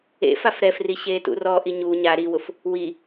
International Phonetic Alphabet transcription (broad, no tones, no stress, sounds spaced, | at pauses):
ḛ f a f ɾ ɛ f r i ɕ eː t ṵ r ɔ ʔ i ɲ u ɲ a ɾ i w ʊ f | w i